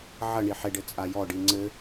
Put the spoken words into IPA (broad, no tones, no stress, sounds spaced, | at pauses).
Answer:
ʕ ɐ ɳ i ħ e ɖ ɘ t͡sʼ a j ɔ ɖ i ŋ͡ǀ ɘ